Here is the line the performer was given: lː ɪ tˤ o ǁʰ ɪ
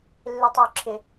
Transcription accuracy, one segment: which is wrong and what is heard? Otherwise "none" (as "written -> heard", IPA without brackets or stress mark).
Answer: none